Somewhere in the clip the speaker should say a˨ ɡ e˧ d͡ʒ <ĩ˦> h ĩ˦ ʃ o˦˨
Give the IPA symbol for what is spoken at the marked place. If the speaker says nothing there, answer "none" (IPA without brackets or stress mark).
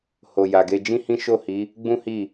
ĩ˦